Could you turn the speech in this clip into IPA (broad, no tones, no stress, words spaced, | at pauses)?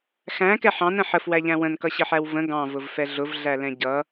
xæ̃kɛħ ɑ̃nə̃ ħəfwæʎæ̃ wə̃nkʌɕəħæw və̃ ɡɑ̃vʊvfɛ ɮʊvɮælɛ̃ ɟʌ